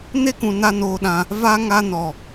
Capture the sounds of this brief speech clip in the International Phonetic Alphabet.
n e˦ k ũ˨ n a˧ n oː˧ ɗ ã˧ | v a˧ ŋ a˧ n ɔ˨

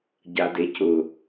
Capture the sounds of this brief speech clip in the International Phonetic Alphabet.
ɟ a d e c ʊ

